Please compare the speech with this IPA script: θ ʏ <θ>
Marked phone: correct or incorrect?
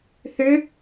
incorrect